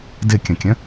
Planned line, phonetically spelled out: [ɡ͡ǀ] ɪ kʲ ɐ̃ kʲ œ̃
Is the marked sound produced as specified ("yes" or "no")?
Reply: no